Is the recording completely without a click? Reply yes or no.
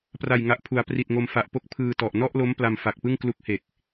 yes